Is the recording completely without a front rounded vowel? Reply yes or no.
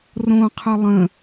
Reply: yes